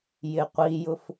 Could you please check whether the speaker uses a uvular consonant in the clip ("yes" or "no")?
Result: yes